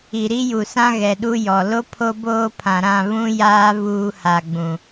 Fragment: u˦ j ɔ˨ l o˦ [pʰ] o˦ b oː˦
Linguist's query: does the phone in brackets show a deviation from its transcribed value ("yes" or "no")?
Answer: no